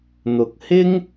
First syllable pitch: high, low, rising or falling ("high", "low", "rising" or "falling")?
low